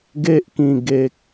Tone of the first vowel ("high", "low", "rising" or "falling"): high